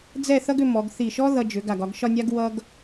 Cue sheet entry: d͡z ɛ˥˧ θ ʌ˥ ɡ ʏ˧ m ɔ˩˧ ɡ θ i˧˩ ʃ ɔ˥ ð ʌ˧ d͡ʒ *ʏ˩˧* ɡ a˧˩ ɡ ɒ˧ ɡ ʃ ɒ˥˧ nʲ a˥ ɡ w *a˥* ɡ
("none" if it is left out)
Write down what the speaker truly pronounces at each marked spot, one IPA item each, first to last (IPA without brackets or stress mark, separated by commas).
ʏ˩˧, ʌ˥